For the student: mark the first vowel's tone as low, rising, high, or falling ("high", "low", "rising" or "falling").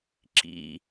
high